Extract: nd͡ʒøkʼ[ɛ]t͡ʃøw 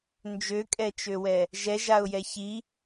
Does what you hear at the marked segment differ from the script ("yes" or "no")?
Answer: no